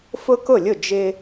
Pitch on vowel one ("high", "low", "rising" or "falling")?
high